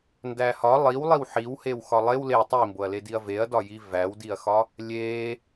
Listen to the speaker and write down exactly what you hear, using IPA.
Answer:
ndæhɒ lˠiwlˠiw ħiwhew xɒlˠew le tˤimboɐ̯le diɐ̯veɐ̯dɒ jivæwdiɐ̯xɒ | lʲe

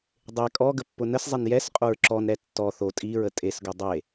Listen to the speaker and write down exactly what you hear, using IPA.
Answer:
dˤe kʼɔ ɡəpːʊnəszˤen jɛs qʼoɹǁɔnɾɛ tːɔ θo tʼiɹə tʼesɡʊ dˤe

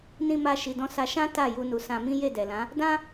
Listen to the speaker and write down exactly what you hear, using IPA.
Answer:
nĩ˧ma˧ ʃi˨dɔ̃˧ sa˧ ʃã˦ ta˦˨ ju˧nu˨sã˧mĩ˦ je˦˨dɛ˨lã˨˦ | dã˦

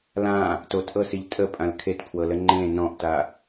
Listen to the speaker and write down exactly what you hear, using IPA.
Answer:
lã | totʔɤsiʎ tʼəpʼãl kʰetpʰwɤlə ŋ͡ǃẽ nɔ̃ʔta

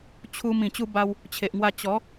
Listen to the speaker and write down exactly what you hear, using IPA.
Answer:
t͡ɕʰu˧m ĩ˨˩t͡ɕu˧ba˧w | t͡ɕʰe˨ʔŋwa˧ t͡ɕɔ˨˦

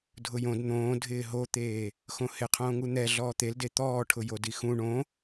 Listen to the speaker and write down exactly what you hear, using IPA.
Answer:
dʱʊjõd n̪õː dʱɪːɦot̪eː | xõhɪqʰõːŋu n̪ɛ ɮɔːt̪elde t̪ɔːʈʰʊ jodixũ ɳõ

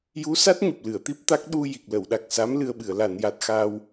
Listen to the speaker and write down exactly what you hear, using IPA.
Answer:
ju˧˥sa˦˥t̚ ɲu˨˩p̚lɨ˨˩˨ə̯t̪i˦˥p̚t̪a˦˥k̚ ɗu˧ ji˨˩k̚lə˨˩˨wɗa˨˩k̚sa˧˥m lɨ˧ə̯ɓɨ˨˩˨ə̯ la˨˩˨nja˨˩t̚ xaː˧w

